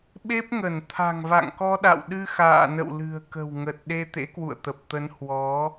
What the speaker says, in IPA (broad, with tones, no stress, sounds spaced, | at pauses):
ɓ e˦˥ p̚ ŋ ə˧˩ n t̪ʰ a̤˨˩ ŋ v a̰˧˨ ŋ k ɔ˧ ɗ a̰˧˨ w ɗ ɨ˧ x a̰ː˧˨ n ə̰˧˨ w l ɨ̤˨˩ ə̯ k ə̤˨˩ w ŋ ə˨˩ t̚ ɗ e˧ t̪ ḛ˧˥ k w ṵ˧˨ ə̯ t̪ ə˨˩ p̚ t̪ ə˨˦ n h w ɔ˨˦